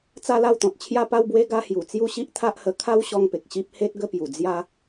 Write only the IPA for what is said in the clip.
t͡sa˥˧la˥˧wt̪ɔ̃˨t̚ t͡ɕʰja˥˧pa˥˧wbwe˦ ɡa˧hju˨˩ t͡sju˥˧ɕi˦ʔt̪ʰa˦ʔhə˧ kʰa˦wɕɔ˧ŋpe˨k̚ ɕi˦p̚ he˦t̚ ɡə˧pju˨˩ d͡zja˦

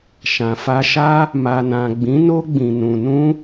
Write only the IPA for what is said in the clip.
ʃã˨fa˧ʃa˦ | ma˨nã˨ɡ͡bĩ˨˦no˦ ɡ͡bĩ˧nũ˧ nũ˦

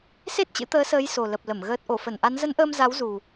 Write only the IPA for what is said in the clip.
se˦˥t̚t͡ɕɨ̰˧˥t̪əː˨˦səː˨˦j so˨˩lə˨˩p̚lə˧˩m ɣəː˨˩t̚ʔo˧˩ fə˧˩nʔa˨˦n zə˨˦nʔəː˧m za˨˦wzu˨˩

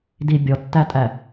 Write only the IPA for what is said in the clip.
di bʲɔtːætʼæ

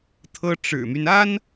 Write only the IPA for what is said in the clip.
t̪ʰɤ˥ʈ͡ʂɻ̩˨˩my˦n a˥n

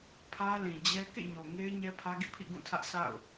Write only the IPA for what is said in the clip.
pʰä˦lĩ˨d͡ʑɛ˦ kḛ˦˨ɲo˨ ŋe˦ɪ̯ ɲɛ˦pʰä˦ɡḭ˦˨pʰḭ˦˨ ɡũ˦˨tʰä˦ʔ sa̰˦˨ʊ̯

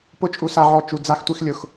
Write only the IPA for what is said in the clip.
pʊ˧t͡ʃʼu˨sa˨ʕɔ˨ t͡ʃu˨d͡za˧xtʷi˧x lʲʊ˨x

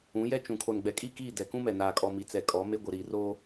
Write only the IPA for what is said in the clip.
ũ˨˦jɛ˦ t͡ʃũ˨ kʰo˨nɡ͡bɛ˨kʼi˦˨ kiː˦˨dɛ˨kũ˦mɛ˨ naː˨kʼɔ˨ mi˨t͡sɛ˨ kʼɔ˨˦me˦ ɡʷɪ˨ ɾiː˨roː˦

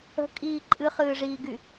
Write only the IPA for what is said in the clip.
ə̤kʼiː ǃʼɨχɨːʐiːɡy

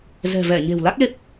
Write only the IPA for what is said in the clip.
zɛ̤˨˩vɛ˧˩ ɲe̤˨˩wla˦˥k̚le˦˥p̚

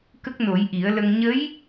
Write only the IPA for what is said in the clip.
kə˦˥k̚no˨˩˦jʔi˨˩˦ə̯lə˧ŋ ɲə˧˥j

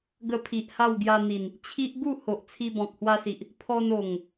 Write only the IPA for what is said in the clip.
ɡə˧pʰi˨ʔ ha˥˧wɡja˧n̪i˨˩n | t͡ɕʰi˦ʔ ɡu˥˧ho˨ʔ t͡sʰi˧bɔ̃˨k̚hwa˧si˨ʔ | pʰɔ˧no˨˩ŋ

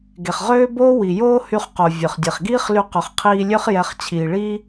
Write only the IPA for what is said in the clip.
ɡe˩χʁøː˥ boː˥ wi˩joː˥hy˧χqo˩ vʲø˩χdʲe˩χɡiː˥χly˧ qœ˩χqʰiː˧lʲø˥χ jɛ˧χ t͡ɕʰiː˩ɭiː˥

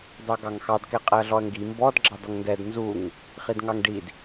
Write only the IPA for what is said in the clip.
dɑɡɑŋxɑd kɛqʼɛɐ̯ɮɔɐ̯ŋɡi mbɔd ɡ͡ǁɑdɔŋndɛd nzuŋ | χidŋɑŋɖid

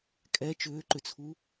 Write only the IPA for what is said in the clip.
kʼɛ t͡ʃʏːǃʏt͡sʰu

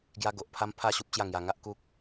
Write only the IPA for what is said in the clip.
ɡja˦ ɡo˨ʔpʰa˦mpʰa˥˧ ɕu˦p̚t͡ɕja˥˧ŋja˧ ŋa˦ʔku˦k̚

